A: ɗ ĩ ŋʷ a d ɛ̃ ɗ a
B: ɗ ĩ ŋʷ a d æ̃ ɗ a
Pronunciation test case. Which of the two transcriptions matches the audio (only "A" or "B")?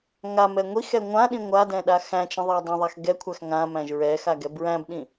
A